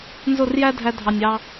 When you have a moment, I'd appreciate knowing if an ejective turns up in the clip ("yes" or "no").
no